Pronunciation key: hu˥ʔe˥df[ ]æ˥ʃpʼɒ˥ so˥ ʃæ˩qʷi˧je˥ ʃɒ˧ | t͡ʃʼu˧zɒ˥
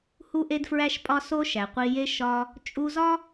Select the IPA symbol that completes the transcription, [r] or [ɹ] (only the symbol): ɹ